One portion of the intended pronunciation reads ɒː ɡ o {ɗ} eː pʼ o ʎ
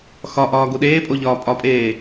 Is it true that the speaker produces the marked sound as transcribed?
yes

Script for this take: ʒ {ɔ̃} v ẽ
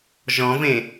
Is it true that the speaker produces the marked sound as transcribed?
yes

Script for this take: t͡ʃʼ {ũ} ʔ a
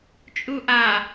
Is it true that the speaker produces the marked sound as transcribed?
no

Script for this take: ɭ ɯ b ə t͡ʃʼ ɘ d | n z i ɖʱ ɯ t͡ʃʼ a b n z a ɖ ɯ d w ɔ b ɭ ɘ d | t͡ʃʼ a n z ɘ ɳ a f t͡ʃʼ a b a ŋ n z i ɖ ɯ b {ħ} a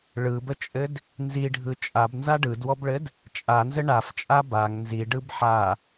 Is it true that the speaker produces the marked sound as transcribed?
yes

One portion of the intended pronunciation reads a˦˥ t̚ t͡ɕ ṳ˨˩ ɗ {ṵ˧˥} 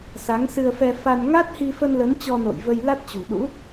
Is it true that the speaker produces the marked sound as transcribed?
yes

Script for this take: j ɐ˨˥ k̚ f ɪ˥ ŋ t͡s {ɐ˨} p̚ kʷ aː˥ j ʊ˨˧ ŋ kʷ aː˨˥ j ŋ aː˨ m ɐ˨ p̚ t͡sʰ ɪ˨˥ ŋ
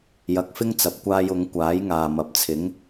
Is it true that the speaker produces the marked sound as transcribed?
yes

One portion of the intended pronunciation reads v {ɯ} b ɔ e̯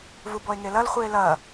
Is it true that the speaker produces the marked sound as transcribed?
no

